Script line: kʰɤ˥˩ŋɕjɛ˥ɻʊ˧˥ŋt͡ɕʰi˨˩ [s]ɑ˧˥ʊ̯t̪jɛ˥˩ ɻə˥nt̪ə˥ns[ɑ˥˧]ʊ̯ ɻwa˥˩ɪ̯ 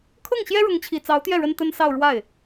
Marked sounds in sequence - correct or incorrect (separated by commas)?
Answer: incorrect, correct